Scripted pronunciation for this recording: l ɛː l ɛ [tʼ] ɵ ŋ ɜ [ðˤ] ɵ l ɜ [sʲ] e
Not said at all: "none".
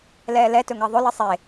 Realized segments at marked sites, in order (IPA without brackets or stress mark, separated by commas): t, ðˤ, sˤ